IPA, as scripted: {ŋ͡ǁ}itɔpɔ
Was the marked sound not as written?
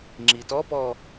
no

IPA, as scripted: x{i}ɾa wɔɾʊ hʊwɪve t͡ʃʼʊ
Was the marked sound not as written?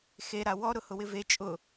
yes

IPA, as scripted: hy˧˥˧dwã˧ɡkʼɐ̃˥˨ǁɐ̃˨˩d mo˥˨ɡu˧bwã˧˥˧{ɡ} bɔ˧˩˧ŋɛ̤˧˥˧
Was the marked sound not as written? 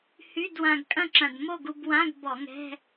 no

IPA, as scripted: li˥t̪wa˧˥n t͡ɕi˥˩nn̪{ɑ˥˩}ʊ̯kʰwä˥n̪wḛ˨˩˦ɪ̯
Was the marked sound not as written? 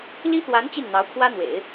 yes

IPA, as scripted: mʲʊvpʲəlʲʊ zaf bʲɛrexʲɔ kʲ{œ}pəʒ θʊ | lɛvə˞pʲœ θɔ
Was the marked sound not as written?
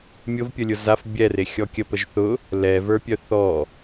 yes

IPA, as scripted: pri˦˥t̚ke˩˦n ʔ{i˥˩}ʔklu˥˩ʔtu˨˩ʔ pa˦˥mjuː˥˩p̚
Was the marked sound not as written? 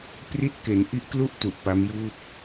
yes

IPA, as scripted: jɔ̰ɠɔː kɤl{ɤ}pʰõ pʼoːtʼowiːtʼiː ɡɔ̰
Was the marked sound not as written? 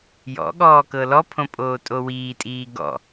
yes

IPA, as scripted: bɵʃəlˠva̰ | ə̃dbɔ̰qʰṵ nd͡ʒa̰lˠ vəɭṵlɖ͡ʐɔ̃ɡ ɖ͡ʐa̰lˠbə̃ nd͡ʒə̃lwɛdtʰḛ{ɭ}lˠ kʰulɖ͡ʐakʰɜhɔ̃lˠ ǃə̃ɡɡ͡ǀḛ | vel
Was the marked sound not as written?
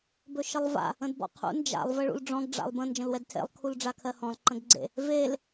yes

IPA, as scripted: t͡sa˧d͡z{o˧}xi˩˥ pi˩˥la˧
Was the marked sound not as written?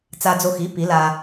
no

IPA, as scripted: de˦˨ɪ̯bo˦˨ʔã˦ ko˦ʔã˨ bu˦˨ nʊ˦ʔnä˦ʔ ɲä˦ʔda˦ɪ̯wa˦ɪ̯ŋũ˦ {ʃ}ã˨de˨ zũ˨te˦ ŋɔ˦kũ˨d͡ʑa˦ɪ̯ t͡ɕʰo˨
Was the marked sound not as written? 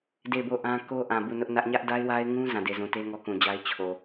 yes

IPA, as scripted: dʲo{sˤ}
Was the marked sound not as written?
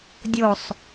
no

